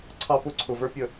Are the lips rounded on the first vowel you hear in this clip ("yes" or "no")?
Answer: no